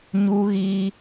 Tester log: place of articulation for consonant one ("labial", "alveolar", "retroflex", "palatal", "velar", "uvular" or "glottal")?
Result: palatal